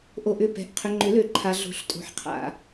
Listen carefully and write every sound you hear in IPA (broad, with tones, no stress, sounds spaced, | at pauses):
ʔ o˨ ʔ ʏ˨ p ɛ̤˨ ʔ qʰ ʏ˨ ŋ͡ǃ ʏ˨˩˦ l ø˨˩˦ ǃʰ a˨ ɮ o̤˨˩˦ ɬ tʼ o̤˨˩˦ ħ qʰ a̰˨